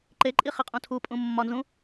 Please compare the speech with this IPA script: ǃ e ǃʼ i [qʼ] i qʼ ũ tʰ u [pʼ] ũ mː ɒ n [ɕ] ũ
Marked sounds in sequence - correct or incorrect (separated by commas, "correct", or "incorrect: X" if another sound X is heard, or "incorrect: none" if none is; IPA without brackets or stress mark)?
incorrect: χ, correct, incorrect: z